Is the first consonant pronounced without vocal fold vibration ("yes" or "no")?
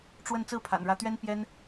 yes